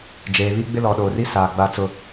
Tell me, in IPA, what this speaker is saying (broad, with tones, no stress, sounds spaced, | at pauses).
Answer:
d͡ʒ eː˨ β i˦ ɡ͡b ɪ˦ l ɔ˨ ɗ oː˨ r i˦ s aː˨ ɡ͡b a˦ t͡s ʊ˦